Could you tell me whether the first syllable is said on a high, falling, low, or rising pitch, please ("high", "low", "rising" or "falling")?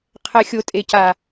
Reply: low